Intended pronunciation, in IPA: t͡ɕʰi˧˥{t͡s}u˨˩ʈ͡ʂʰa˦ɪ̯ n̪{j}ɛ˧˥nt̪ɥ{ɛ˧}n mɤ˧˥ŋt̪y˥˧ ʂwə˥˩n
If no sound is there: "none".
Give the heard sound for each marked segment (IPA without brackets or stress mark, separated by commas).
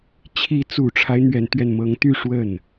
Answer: t͡s, ɥ, ɛ˧